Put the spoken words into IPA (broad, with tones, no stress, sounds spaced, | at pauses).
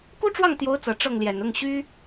k u˥ ʈ͡ʂ w ɑ˥˩ ŋ t̪ j o˧˥ ʊ̯ t͡s ɤ˨˩ ʈ͡ʂ ɤ˥˩ ŋ l j ɛ˨˩ n ʊ˥˩ ŋ ɕ y˥